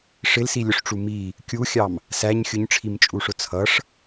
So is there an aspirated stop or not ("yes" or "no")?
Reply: yes